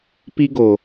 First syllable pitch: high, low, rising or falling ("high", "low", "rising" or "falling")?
high